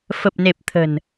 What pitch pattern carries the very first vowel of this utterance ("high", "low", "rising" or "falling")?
low